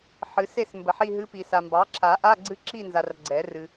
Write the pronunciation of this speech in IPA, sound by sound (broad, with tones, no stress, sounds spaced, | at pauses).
ħ ɨ˨˩˦ s e˦˨ s m b ə˨˩˦ ħ i˦˨ ɦ ɨ˧˥ p i˨ s a˨ m b ɑ˩˥ ǁʰ a˨˩˦ ʔ a˧˥˧ ɡ͡ǀ ɨ˧˥ ǁ i˦˨ n z a˨ r ɡ͡ǀ ɛ˨˩˦ r ɨ˨